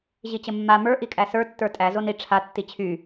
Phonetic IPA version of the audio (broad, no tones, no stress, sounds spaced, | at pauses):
ʑ i t͡ɕ ə mː a m ə˞ ʔ i kʼ æ s ə˞ tː ə˞ tʼ æ z o n i ʈ͡ʂʰ a tː i t͡ɕʰ y